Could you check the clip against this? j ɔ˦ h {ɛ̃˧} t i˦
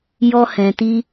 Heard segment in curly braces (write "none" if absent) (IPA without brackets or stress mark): ɛ̃˧